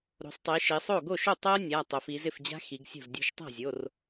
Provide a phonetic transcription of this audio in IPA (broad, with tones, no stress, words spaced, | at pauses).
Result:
ɾo̤˩˧sˤtˤi˩˧ʃi˩˧sˤo˥˩ ɡo˥˩ʃo˥˩ tˤɜ˦˥nʲa˩˧˩ tˤo˩˧fi˩˧zɪ˥˩fd͡ʑa̤˦˥ xi˩˧ɡ sʲo̤˥˩zdʲo̤˥˩ʃ tˤa̤˥˩zʲo˩˧˩r